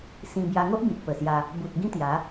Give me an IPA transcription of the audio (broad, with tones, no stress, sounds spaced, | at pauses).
s ĩ˧ b j a˧ ŋ o˦ ʔ b ĩ˨ t̚ p ə˨˩ s j a˧ | b u˨ t̚ ɡ ĩ˦ t̪ j a˨˦